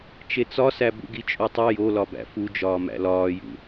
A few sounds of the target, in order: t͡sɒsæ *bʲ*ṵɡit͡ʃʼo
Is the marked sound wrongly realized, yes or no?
yes